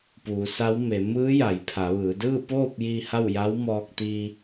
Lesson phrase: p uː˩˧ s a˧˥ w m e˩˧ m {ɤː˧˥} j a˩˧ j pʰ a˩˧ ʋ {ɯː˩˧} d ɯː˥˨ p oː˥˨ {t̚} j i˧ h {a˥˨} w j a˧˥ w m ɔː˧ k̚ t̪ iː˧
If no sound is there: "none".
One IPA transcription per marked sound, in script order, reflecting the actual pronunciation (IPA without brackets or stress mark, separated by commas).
ɯː˧˥, ɯː˩˧, p̚, a˥˨